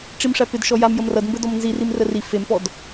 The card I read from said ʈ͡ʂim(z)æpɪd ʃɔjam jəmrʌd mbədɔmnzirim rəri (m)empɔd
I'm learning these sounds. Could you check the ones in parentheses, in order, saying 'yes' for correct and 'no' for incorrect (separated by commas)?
no, no